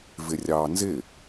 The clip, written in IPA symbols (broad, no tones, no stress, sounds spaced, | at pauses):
v ɪ rʲ ɑː n z ɪ